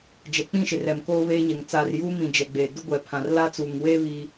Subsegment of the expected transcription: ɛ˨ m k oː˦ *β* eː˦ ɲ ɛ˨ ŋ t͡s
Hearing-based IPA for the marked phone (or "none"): β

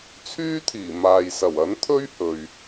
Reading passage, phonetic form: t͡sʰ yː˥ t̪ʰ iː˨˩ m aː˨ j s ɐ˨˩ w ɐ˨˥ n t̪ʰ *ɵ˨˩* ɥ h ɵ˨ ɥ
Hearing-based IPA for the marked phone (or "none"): ɵ˥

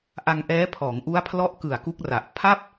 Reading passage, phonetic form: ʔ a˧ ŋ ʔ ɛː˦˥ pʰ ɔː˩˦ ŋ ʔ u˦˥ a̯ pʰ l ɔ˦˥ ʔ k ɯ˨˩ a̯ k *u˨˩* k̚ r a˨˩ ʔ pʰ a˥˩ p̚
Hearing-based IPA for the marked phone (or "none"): u˦˥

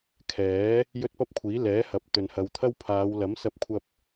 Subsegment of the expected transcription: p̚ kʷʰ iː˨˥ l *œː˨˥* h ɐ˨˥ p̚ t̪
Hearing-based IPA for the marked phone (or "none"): ɛː˨˥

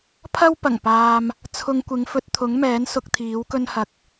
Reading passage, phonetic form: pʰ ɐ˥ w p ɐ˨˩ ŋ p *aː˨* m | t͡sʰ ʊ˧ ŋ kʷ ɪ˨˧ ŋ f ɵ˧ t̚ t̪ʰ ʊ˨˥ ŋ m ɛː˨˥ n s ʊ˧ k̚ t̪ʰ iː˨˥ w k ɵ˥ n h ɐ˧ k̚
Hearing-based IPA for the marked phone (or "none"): aː˨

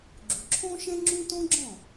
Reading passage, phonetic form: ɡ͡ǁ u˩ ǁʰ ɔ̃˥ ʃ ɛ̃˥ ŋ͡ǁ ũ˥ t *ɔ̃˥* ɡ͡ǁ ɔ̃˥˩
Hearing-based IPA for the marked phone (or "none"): ɔ̃˥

